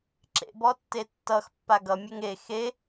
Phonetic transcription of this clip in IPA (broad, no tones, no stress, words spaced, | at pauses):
ǁḛbɔtːe tːʌxpːa ɡʌmʲeŋ e xe